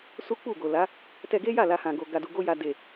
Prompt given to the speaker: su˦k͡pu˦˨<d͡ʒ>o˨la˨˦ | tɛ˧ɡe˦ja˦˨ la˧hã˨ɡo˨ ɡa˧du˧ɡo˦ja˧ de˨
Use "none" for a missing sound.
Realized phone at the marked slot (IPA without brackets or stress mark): ɡ